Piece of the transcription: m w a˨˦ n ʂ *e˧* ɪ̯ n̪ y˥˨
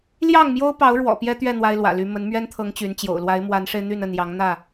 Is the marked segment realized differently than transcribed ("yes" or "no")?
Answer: no